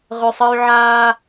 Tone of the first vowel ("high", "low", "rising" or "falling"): low